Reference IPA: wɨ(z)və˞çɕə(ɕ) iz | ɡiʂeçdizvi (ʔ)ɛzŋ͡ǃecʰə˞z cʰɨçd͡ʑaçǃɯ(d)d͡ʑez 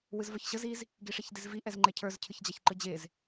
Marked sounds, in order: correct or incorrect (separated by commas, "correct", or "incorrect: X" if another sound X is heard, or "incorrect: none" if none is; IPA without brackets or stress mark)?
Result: correct, incorrect: z, correct, incorrect: none